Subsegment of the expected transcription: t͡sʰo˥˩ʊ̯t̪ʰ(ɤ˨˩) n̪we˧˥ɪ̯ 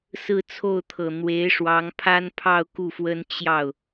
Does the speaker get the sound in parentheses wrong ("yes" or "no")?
no